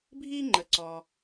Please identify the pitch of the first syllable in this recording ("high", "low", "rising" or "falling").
high